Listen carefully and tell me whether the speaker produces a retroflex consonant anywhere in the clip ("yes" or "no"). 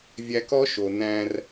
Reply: no